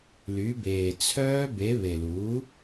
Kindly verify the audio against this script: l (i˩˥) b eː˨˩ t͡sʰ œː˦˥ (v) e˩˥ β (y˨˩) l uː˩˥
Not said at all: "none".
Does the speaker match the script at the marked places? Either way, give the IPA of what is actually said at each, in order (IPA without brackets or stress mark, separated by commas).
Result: y˩˥, b, e˨˩